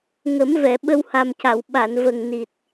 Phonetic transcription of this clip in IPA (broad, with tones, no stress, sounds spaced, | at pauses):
ŋ ə˨˩˦ m v ɛ˨˩˨ ɓ ə˧ w h a˨˩ m c a˨˩˨ w ɓ a˨˩˨ n v ə˨˩ ŋ n i˨˩ t̚